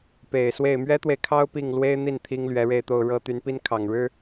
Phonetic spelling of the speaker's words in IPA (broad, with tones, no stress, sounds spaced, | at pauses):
p e˨˩ ɪ̯ s w e˥˩ ɪ̯ m ɥ ɛ˥ t̪ w e˨ ɪ̯ kʰ ɑ˥ ʊ̯ p i˥˩ ŋ l w e˥ ɪ̯ n̪ i˥˩ n t̪ʰ i˥ ŋ l ɥ ɛ˧˥ ɻ e˥˧ ɪ̯ t̪ o˥˧ ʊ̯ ɻ ɤ˥˩ t̪ y˧˥ n p i˥ n kʰ ɑ˨˩ ŋ ɻ ɻ̩˥